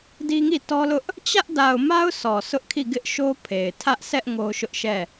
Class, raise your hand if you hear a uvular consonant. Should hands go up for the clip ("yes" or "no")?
no